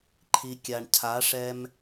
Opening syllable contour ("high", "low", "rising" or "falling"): low